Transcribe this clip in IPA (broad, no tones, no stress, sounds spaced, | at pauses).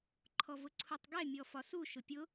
ǃʰ ɔ v ʊ ǀʰ u tˤ ɡ ɛ mʲ ɔ f ɒ s u ʃ ʊ pʲ ʊ